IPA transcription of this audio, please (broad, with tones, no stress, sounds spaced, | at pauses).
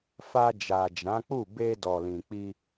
f a˧ d͡ʒ a˨ d͡ʒ ã˨˦ k͡p u˦˨ b e˧ d ɔ˨ l ĩ˨ k͡p i˧